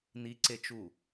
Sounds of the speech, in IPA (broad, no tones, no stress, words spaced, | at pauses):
niǀet͡ʃu